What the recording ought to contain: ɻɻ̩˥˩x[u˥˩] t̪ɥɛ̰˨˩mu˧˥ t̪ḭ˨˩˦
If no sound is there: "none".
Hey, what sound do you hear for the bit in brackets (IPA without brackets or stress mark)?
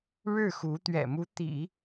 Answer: u˧˥